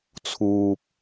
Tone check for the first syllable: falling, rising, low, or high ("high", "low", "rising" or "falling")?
low